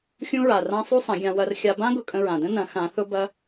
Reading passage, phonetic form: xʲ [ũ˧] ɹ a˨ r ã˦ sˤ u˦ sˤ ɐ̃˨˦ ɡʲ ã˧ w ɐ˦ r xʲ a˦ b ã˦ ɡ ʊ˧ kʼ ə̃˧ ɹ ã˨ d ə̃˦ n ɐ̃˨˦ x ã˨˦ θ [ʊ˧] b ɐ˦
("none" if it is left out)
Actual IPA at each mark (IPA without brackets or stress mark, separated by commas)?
ũ˦, ʊ˦